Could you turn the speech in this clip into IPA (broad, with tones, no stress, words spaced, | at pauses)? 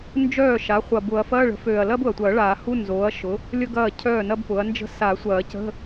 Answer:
nd͡ʒœː˥˩ʃa˩˥ χʷɐ˨˩bʊ˨˩˦ɐ̯ fɐː˧˥˧ɭə̤˩˥føː˨˩ɐ̯lɐː˥b ʊ˨˩ɐ̯tʷɐː˨˩˦ɭaː˨˩˦hu˧˥˧ nzoː˩˥ɐ̯ʃʊ˩˥ | lʲə˥ɡɐː˥˩ cʰœː˥˩nɐ˥bpʊ˩˥ɐ̯nd͡ʒə̤˥ sa˨˩˦sʷɐː˨˩˦cə̤˧˥˧